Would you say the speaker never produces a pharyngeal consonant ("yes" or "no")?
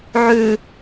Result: no